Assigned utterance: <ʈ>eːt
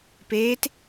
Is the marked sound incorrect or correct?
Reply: incorrect